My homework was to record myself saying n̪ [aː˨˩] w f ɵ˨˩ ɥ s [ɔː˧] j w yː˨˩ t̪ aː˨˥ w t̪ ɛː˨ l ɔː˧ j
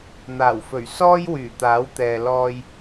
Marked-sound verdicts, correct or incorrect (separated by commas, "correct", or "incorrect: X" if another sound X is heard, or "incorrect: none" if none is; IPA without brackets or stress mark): correct, incorrect: ɔː˥